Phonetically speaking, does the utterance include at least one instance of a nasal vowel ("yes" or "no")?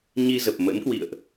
no